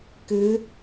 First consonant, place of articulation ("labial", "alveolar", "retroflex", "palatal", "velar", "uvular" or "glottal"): velar